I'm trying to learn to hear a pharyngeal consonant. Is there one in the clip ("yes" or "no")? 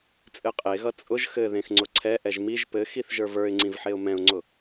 yes